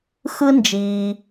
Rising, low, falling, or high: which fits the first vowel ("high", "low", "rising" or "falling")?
high